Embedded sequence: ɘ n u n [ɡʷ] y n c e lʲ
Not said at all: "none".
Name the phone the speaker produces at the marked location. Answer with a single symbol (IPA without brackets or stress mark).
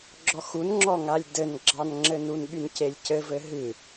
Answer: ɓ